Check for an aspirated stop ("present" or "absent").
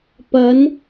absent